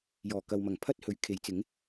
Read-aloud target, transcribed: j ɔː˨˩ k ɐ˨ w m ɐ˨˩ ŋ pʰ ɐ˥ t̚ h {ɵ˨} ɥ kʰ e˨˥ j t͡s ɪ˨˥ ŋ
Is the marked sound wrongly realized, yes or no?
yes